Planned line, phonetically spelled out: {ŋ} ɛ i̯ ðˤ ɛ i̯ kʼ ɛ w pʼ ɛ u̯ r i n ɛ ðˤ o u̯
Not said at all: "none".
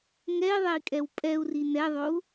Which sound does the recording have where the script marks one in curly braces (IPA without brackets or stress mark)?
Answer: ŋ